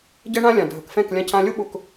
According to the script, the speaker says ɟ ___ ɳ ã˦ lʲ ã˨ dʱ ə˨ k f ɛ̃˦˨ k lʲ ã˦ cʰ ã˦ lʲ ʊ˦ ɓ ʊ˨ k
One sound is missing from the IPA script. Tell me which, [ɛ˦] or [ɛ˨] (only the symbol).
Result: ɛ˦